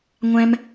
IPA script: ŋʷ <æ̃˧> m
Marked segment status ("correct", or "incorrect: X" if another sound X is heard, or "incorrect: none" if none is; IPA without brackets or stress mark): correct